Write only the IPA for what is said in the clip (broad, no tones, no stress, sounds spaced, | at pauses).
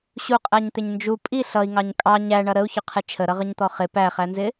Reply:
ɕ u qʼ æ ɲ t̪ ɪ ɲ n d͡ʒ u pʼ i ɬ ʌ i̯ ŋ ɑ ɲ kʼ ɑ ɲ æ ɳ ʌ ɾ ə u̯ ç ʊ qʰ ɪ t͡ʃʰ ə ɾ ʌ ʁ ə ɲ t̪ ɔ χ ɪ p æ χ æ n z ɪ